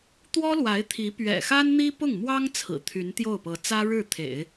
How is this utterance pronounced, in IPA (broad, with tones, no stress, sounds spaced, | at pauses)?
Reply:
t̪ w ɔ˥ l w a˧˥ ɪ̯ t̪ʰ i˧˥ p ɥ ɛ̰˨˩ x a˥ n n̪ i˥ p ʊ˥˩ ŋ m w ɑ˥ ŋ t͡sʰ ɹ̩˨˩ t̪ʰ y˧˥ n t̪ j o˥˩ ʊ̯ p ɤ˧˥ t͡s ä˥ ɻ ɻ̩˥˩ t̪ʰ ḛ˨˩˦ ɪ̯